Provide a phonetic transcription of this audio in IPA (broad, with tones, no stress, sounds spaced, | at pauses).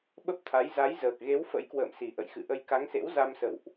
ɓ ə˦˥ p̚ t̪ʰ a˨˦ j z a˨˦ j z əː˨˩ k̚ ɣ e˨˦ w f ə̰˧˥ j k w ə̰ː˧˨ m s i˨˩ ʔ ə̰˧˨ j x ɨ̰˧˨ ʔ ə˧ j k a˨˦ ŋ s ḛ˧˥ w z a˧ m s ə̰˧˨ w ʔ